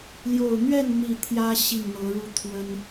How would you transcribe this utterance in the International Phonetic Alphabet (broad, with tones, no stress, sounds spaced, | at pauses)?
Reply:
l j o˨˩ ʊ̯ n̪ ɥ ɛ˥˨ n n̪ i˨˩ t̪ʰ j ä˦ ɕ i˥˨ ŋ n̪ ɤ˨˦ ɻ u˥˨ t̪ʰ w ə˦ n